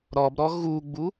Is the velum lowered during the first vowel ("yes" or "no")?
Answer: no